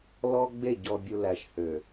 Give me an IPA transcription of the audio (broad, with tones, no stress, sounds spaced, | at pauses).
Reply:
l ɔ˦ ɡ͡b e˦˨ ɟ ɔ˨ bʲ u˨ l æ˨ ʃ h ø˨